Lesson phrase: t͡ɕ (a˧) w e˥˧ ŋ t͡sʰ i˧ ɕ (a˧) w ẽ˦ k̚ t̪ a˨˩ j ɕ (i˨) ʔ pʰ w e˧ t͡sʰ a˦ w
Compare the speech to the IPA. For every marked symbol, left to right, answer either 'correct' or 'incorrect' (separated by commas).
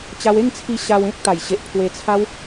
correct, correct, incorrect